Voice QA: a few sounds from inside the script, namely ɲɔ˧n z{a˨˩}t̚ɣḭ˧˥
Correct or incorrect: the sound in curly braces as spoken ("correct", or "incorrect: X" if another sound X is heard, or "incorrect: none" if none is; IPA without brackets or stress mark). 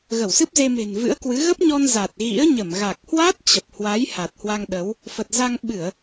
correct